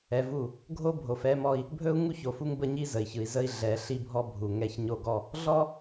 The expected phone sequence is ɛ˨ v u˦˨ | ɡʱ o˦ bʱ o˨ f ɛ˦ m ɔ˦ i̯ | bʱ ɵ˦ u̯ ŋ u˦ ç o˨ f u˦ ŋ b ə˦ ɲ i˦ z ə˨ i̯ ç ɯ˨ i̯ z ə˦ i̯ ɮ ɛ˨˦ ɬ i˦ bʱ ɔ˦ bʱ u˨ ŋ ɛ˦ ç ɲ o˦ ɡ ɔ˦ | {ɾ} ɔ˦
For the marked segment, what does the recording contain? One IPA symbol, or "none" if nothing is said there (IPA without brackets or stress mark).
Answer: ɮ